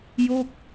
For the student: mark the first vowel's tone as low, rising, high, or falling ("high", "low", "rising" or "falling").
falling